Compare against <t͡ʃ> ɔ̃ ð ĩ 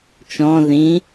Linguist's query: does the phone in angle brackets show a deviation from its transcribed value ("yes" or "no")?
no